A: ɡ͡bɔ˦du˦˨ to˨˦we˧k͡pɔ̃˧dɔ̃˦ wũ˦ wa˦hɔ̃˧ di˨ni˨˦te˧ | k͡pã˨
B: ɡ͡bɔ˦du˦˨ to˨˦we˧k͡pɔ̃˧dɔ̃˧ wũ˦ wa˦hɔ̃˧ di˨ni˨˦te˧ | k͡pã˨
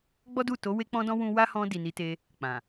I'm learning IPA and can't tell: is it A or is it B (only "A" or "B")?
B